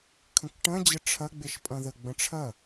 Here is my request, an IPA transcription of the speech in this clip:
kʰə̃kʈɐ̃ d͡ʑəʈ͡ʂʰɐ ɡ͡beʃpʼɐ̃ðə ɡ͡bə̃ʈ͡ʂʰɐ

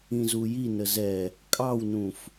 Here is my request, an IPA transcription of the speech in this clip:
ĩzujinə zɛ | kʼɑwnũf

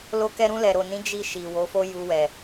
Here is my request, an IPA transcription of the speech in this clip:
lo˧kɛ˧ɾũ˧ lɛ˨ɾo˨nĩ˨˦ d͡ʒi˧ ʃi˨wo˨˦fo˦ ju˧wɛ˨

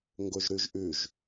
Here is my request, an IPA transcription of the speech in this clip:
ŋɡoʒɾʉʒʔʉʒ

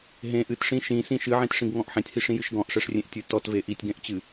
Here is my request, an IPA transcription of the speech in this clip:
ɦẽ ʔɨtʂĩ ʃĩsĩ ʃɨʕĩtʂĩɡŋɔ̃ʔ ħẽtʲhiʂĩjɨʃ ɡɔ̃ʔʂɛʂrʲẽʔtʲɨ tɔtve ʔitʲɡɛ̃ʔt͡ɕɨ

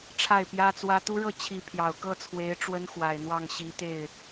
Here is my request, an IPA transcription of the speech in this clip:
ʈ͡ʂʰa˥˩ɪ̯pjä˥t͡swä˥ t̪u˥ɻɤ˥˩t͡ɕʰi˧˥ pʰjɑ˨˩ʊ̯ kɤ˥˩t͡sʰwe˧˥ɪ̯ ʈ͡ʂwə˥nxwa˨˩ɪ̯ n̪wɑ˥˩ŋɕi˧˥ t̪e˥˩ɪ̯

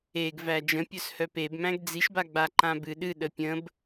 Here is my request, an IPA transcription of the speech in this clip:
eɡ væd͡ʒə̃ pʲœshœpebmæ̃ɡ d͡ziʃbaɡ͡ba ǃãbɨ ɗɨ ɗəpʲə̃b

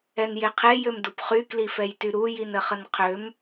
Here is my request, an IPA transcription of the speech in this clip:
ɛnjeqʰe jømdupχy klifɛjtyɾu jinəχənqʰøm

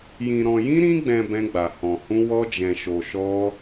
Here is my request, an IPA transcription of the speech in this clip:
jĩ˧ ɾɔ̃˧jĩ˦ɾĩ˦ɡ͡bɛ̃˧ bɛ̃˦ɡ͡ba˧hɔ̃˧hũ˦ wɔ˦d͡ʒɛ̃˧ʃo˧ ʃɔ˦

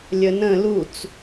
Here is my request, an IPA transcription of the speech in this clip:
lʲənə̃ lut͡s

